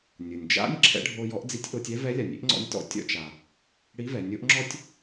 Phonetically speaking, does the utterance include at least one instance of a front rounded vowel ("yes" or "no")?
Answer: no